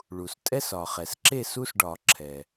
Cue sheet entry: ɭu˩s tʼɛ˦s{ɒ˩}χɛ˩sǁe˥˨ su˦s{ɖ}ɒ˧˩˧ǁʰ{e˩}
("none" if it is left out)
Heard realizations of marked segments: ɒ˩, ɖ, ɛ˩

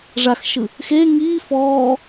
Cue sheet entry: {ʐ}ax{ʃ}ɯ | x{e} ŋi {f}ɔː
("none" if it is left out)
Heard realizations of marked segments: ʐ, ʃ, e, f

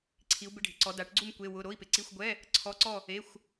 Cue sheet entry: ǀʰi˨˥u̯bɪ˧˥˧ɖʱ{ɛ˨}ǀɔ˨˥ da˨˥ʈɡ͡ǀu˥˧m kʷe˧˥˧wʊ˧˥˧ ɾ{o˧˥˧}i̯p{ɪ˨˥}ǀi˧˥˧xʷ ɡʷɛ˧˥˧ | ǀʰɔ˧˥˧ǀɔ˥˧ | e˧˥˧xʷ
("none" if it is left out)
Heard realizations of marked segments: ɪ˨, o˧˥˧, ɪ˨˥

